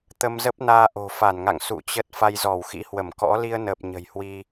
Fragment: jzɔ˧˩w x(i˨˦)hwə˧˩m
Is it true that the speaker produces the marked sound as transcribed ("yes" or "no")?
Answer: no